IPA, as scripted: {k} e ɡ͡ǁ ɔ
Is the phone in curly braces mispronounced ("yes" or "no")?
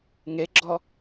yes